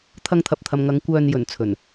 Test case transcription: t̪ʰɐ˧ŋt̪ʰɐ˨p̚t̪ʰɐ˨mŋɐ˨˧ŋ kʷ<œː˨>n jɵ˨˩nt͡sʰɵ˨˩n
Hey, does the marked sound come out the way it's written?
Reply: yes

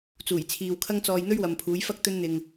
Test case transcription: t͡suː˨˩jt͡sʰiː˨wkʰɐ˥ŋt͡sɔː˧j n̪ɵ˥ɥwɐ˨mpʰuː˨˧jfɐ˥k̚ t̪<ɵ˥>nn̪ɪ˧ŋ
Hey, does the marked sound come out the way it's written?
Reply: yes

